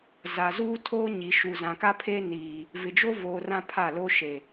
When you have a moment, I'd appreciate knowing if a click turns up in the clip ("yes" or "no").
no